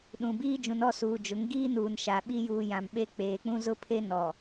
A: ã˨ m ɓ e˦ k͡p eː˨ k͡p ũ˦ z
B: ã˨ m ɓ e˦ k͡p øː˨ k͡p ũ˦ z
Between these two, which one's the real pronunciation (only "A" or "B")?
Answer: A